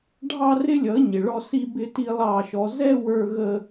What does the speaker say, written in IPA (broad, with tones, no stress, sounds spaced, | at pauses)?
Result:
ɖʱ ɑ˦ r ɪ˦ lʲ ʌ˨˦ ɲ ɪ˨ ɭ ɔ˦ s i˦ b ɪ˦ t i˦ lˠ ɑ˦˨ ʃ ɔ˧ z ɛ˦ w ə˞˦ ɣ ə˦